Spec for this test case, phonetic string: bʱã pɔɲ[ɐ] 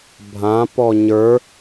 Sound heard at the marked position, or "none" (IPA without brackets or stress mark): ə˞